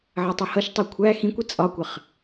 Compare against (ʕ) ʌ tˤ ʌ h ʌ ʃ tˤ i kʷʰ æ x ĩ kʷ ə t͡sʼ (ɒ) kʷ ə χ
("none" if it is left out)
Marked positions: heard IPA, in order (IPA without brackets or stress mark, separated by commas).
ʕ, ɒ